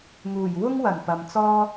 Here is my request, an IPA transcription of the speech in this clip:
ŋ uː˨˩ j w ʊ˥ ŋ w ɐ˨˩ n p ɐ˨ m t͡s ɔː˥

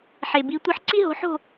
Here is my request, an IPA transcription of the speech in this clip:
ħ e˨ b i˧˥ tʷ ɯ˧˥ ħ ǀ i˥ ɦ o̤˧˥ ħ o̤˥˧

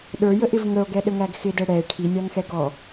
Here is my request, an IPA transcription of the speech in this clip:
ɗ ə˞ j ə ʔ ɪ v ŋ ə o̯ ɡ ɛ ɗ ə ŋ æ ɡ x ɪ d ɛ ɽ ɛ e̯ ʈʰ i nʲ ɑ ŋ x ɛ ɡ ɔ

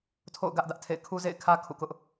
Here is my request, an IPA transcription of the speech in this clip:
tʰ o̰˦˨ ʊ̯ ɡ ä˦ ʔ d ä˦ ʔ tʰ ḛ˦˨ ɪ̯ kʰ u˦ z ḛ˦˨ ɪ̯ kʰ ä˦ kʰ ṵ˦˨ k ʊ˦ ʔ

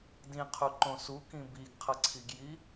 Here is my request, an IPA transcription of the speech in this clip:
d ĩ qʰ u ǃ õ s u k ĩ b i ɡ qʰ ʌ ǀʰ i ɡ j i

